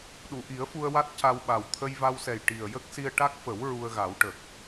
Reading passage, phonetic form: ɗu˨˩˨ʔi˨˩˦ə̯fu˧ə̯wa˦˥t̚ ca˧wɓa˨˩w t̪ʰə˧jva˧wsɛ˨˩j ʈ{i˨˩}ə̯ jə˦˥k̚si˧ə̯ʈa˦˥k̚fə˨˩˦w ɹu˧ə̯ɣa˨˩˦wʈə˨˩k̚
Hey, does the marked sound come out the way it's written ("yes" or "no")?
yes